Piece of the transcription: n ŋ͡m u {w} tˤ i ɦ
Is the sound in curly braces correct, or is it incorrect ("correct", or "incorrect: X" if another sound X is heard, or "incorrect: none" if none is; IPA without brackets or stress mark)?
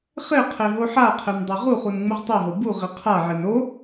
incorrect: ʁ